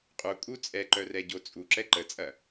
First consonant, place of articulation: uvular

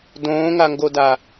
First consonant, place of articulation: alveolar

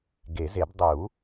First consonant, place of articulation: velar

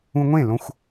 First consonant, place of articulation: velar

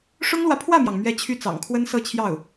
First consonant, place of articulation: retroflex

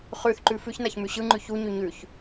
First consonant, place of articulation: uvular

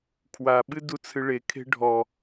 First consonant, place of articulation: velar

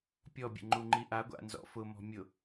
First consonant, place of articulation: labial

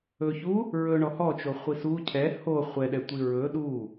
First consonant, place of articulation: palatal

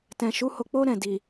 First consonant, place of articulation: alveolar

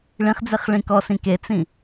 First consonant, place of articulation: retroflex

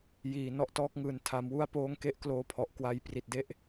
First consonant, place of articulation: palatal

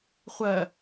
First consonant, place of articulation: uvular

